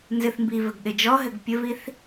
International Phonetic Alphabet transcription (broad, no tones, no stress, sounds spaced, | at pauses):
n z ɨ θ m b i v ɘ ɡ ɗ ɨ d͡ʒ ɔ ɦ ɘ ɡ pʲ ɘ v i θ